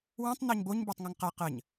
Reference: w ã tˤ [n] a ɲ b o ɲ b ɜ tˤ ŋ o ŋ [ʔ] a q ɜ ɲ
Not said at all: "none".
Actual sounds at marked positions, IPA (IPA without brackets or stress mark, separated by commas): n, q